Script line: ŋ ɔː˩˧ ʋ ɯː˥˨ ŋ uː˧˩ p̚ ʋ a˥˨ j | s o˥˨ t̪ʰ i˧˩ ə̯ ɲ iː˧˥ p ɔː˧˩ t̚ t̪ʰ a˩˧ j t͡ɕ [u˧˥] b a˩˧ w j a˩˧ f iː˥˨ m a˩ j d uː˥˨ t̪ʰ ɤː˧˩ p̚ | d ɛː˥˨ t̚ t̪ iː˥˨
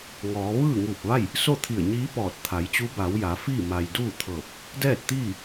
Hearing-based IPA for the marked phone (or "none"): u˧˥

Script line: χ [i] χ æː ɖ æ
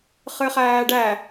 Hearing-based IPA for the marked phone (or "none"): ɨ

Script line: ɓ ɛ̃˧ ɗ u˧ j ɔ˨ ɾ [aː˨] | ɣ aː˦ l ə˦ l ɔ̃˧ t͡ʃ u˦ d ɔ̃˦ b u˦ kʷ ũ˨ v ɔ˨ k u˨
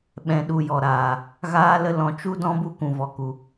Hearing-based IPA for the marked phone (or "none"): aː˨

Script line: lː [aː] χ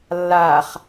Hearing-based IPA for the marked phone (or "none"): aː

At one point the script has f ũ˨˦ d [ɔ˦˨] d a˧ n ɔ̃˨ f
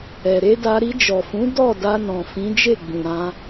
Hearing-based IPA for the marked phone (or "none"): ɔ˦˨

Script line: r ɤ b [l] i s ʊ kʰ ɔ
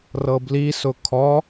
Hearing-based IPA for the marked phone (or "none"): l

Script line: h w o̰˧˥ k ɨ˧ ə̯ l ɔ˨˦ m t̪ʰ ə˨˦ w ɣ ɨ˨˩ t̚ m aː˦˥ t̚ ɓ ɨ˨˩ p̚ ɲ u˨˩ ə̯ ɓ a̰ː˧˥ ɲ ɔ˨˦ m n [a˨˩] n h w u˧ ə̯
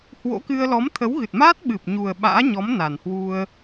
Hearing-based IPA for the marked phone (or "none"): a˨˩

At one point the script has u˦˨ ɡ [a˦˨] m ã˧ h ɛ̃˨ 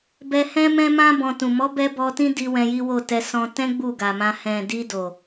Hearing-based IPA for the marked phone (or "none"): a˨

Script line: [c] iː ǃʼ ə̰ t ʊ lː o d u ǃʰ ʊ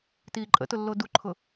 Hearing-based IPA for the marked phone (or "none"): t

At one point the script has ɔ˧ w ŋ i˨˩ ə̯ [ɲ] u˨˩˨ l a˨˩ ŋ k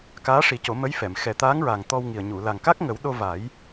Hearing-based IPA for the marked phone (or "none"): ɲ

